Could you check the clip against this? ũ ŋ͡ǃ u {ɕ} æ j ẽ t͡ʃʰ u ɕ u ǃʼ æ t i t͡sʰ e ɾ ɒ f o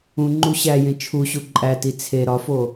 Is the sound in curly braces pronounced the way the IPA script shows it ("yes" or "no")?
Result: yes